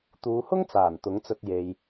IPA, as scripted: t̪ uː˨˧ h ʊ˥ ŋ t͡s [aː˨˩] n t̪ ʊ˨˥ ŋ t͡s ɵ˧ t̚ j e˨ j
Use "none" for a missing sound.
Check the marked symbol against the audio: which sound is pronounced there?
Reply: aː˨˩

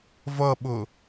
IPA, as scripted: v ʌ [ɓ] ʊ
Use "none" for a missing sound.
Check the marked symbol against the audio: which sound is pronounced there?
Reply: ɓ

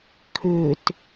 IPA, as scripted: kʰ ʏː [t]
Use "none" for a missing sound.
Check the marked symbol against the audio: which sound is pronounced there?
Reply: t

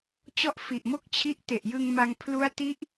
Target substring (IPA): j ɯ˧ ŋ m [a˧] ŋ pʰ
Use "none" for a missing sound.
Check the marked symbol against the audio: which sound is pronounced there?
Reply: a˧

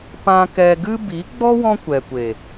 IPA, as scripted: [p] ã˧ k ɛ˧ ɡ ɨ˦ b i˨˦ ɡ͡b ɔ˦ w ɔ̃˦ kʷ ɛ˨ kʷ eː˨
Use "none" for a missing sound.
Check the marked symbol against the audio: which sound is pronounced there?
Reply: p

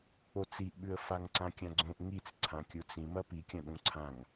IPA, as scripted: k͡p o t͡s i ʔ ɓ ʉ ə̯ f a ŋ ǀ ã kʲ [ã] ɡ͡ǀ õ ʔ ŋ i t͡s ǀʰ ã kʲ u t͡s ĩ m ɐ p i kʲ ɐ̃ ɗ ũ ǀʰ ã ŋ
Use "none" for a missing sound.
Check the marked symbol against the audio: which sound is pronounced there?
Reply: ã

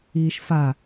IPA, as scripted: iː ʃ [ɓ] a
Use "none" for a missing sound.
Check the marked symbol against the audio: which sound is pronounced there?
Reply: f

